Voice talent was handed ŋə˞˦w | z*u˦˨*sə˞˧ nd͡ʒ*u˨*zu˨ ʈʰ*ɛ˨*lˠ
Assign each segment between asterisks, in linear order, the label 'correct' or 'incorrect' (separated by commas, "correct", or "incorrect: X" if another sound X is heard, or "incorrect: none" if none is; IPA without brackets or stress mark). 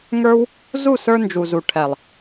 correct, correct, correct